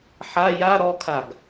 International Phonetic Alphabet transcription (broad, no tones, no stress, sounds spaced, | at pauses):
ħ a j a ɾ ɔ kʰ a ɡ